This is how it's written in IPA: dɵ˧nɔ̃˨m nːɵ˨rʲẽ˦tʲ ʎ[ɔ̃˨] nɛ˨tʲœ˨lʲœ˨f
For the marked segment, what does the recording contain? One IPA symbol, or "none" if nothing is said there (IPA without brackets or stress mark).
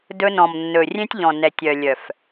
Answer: ɔ̃˨